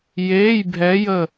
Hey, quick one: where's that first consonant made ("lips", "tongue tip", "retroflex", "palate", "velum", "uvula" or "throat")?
palate